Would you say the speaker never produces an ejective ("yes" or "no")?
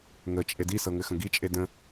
no